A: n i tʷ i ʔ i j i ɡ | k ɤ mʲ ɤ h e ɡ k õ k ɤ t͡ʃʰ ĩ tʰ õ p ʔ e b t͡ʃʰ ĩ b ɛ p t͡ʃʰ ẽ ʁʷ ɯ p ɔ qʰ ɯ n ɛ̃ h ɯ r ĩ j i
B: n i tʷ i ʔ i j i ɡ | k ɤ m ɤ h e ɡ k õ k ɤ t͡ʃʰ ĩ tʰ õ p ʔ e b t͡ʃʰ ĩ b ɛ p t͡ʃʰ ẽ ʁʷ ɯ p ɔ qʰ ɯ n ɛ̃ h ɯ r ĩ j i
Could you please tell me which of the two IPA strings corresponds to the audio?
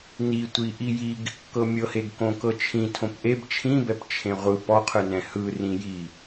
A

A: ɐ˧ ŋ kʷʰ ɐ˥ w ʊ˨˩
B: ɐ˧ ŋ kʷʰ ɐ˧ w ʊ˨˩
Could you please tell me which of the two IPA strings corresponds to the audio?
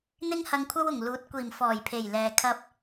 A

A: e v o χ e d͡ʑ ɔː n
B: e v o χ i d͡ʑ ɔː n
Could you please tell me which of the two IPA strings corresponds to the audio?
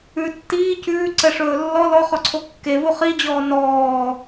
B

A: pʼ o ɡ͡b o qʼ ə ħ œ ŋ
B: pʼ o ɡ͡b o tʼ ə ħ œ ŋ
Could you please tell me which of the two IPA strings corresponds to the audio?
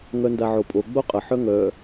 A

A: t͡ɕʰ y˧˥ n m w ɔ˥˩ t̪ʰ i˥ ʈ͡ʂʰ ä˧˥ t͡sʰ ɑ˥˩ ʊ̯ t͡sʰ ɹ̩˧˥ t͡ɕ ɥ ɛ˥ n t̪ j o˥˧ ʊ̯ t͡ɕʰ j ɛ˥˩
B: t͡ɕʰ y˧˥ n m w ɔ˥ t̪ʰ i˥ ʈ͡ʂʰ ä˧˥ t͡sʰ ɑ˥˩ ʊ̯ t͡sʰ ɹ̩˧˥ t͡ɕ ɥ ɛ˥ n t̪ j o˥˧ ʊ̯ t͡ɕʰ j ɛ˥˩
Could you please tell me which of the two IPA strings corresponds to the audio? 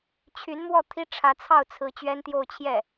A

